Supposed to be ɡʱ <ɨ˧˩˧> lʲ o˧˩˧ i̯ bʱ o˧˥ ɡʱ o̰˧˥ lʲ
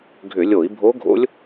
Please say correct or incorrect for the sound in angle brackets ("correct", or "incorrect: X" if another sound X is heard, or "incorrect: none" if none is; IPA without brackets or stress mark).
incorrect: ʏ˧˩˧